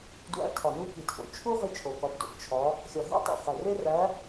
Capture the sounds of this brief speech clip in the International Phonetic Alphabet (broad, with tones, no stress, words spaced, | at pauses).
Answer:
dwæ̰˨˦ tʰɒ˨˩nu˦ki˨˩tʰo̰˨˩ t͡ʃʰu˦ ʁi˦t͡ʃʰo˨˩kɒ˨˦bdo̰˨˩b t͡ʃʰɒ˨˦ | xʲɒ˨˩ɦæ̰˦tˤo̰˨˩χæ˨˩ re˦ræ˨˦